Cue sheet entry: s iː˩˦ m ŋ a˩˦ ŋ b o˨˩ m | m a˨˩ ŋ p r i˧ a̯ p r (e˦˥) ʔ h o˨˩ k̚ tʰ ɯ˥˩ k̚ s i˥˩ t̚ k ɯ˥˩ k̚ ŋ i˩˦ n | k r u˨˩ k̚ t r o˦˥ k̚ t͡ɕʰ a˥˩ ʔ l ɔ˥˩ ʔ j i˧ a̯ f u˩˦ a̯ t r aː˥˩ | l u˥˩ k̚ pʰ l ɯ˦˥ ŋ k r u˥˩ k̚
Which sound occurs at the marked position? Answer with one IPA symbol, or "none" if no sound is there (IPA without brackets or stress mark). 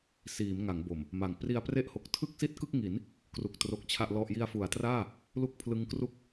e˥˩